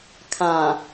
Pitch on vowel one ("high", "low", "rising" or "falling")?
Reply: low